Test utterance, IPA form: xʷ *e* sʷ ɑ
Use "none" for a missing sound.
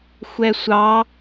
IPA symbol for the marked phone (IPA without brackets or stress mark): ɛ